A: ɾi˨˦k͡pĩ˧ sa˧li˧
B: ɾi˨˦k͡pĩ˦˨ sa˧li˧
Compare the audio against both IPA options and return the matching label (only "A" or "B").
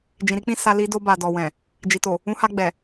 B